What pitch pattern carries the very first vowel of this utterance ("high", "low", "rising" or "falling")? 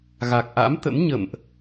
low